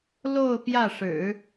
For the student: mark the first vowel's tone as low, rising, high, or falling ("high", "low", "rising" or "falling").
falling